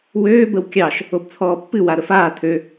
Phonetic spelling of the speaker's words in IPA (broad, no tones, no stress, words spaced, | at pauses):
wøː bəwkʲɑʃ | obt͡sʰɔːpːɨ waɾəfaː tʰø